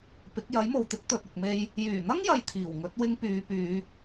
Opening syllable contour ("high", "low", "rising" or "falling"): rising